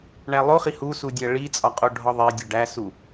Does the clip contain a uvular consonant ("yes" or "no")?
yes